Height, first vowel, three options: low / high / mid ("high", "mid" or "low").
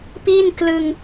high